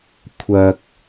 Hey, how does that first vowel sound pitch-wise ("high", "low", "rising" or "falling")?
low